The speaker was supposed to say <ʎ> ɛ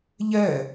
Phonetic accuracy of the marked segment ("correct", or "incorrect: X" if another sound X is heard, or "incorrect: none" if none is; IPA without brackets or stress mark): correct